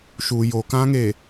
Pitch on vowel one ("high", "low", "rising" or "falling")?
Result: low